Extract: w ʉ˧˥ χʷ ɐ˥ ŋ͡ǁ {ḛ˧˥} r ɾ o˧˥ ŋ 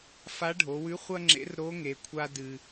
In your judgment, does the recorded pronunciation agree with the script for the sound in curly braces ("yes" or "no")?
yes